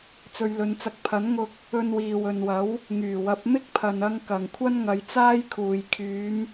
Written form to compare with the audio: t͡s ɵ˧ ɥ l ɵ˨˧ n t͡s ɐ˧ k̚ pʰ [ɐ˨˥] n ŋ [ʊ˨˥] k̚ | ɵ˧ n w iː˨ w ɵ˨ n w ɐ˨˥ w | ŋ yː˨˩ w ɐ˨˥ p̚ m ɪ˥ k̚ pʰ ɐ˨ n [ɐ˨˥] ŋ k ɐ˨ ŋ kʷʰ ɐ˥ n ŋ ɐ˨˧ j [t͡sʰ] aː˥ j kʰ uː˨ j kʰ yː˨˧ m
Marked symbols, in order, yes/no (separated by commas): yes, no, no, no